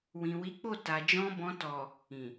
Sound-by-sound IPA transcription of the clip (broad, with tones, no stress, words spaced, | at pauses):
wĩ˨wi˨˦k͡po˦˨ ta˨d͡ʒɔ̃˧bɔ̃˧ tɔ˨ | ĩ˨